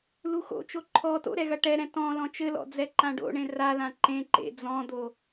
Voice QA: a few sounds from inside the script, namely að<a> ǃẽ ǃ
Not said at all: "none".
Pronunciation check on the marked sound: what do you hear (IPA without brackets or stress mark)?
ã